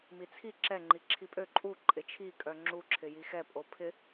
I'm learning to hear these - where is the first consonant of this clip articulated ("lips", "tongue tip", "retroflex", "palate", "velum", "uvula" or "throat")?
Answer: lips